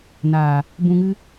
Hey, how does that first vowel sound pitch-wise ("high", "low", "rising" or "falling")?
low